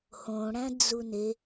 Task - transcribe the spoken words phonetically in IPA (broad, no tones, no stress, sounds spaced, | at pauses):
h õ ɽ æ̃ d͡z u n e